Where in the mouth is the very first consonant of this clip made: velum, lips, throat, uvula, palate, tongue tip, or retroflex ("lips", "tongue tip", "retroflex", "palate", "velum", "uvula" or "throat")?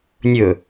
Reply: tongue tip